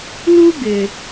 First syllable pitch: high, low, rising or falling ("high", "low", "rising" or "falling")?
high